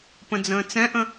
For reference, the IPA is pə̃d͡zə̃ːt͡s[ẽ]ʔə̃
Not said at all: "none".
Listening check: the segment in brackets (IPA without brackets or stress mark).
ɛ̃